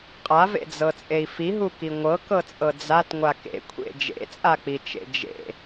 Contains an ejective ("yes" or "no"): yes